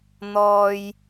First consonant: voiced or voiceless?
voiced